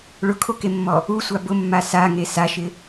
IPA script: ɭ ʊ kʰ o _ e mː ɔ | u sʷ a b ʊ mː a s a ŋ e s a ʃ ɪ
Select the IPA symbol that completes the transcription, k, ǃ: k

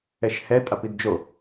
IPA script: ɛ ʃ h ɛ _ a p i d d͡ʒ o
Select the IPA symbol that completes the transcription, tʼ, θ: tʼ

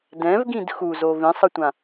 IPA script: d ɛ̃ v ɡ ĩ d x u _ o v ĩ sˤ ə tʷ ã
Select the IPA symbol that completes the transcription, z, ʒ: z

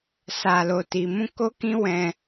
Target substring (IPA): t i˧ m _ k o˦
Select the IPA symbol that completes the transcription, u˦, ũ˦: ũ˦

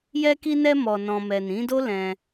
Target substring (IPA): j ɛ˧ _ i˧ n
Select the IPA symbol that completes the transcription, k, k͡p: k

